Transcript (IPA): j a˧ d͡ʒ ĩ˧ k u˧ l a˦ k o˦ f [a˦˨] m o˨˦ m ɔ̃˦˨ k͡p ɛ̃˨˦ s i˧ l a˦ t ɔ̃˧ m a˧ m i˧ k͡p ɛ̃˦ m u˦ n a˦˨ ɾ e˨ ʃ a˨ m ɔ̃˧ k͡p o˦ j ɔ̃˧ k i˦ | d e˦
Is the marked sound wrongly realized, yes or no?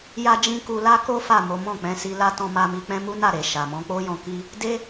no